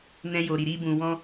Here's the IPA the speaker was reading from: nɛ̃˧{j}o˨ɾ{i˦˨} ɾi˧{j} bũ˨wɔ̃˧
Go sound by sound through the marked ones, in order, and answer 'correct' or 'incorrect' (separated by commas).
correct, incorrect, incorrect